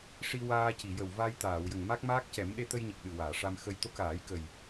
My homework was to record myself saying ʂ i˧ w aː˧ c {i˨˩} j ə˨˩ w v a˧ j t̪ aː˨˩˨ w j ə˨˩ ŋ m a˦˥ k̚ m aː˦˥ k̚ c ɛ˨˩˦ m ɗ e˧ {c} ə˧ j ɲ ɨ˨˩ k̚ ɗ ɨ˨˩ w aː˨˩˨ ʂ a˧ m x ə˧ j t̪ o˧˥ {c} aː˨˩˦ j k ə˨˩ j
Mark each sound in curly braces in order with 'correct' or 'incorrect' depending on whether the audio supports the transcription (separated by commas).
incorrect, incorrect, incorrect